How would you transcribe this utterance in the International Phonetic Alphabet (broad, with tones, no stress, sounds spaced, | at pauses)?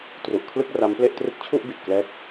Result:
t r u˨˩ ʔ kʰ l ɯ˥˩ k̚ r a˦˥ m p l e˥˩ ʔ t r ɯ˦˥ k̚ t͡ɕʰ u˥˩ ʔ b i˨˩ t̚ k l ɛː˦˥ k̚